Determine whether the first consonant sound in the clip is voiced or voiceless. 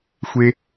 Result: voiceless